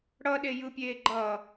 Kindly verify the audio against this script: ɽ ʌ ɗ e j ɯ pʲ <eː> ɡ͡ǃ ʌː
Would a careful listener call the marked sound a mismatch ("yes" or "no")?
no